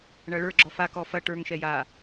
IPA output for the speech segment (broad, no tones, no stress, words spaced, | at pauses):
ɳɐɭə˞ ɡ͡ǁɔfa kɔfɐ ʈə˞ŋ ʃɛja